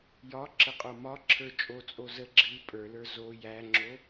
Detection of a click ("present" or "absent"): present